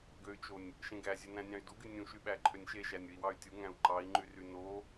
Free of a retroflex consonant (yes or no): yes